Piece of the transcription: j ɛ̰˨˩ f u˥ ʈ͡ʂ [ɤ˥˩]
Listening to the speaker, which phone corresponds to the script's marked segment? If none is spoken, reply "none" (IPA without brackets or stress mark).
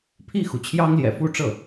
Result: ɤ˥˩